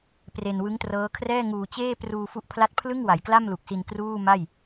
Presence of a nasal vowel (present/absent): absent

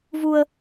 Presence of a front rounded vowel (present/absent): absent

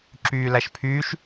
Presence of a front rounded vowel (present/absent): present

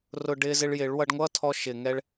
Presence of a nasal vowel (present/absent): absent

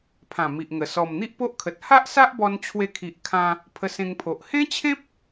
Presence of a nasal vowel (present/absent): present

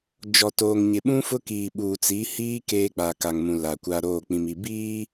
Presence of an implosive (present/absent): present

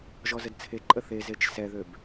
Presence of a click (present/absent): present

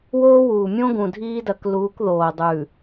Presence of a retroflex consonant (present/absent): absent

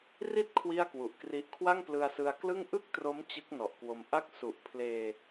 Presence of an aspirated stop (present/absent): present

